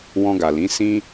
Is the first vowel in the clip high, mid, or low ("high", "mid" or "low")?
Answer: mid